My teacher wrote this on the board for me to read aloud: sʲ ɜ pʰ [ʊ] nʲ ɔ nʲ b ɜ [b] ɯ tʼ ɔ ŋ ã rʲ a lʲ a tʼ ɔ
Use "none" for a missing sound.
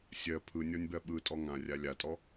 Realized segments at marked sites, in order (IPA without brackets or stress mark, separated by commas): ɯ, ɓ